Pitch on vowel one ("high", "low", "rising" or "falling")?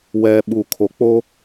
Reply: low